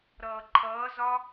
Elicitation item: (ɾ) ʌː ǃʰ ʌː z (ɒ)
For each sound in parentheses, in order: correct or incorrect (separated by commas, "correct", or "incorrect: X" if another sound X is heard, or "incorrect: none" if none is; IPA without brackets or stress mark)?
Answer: correct, correct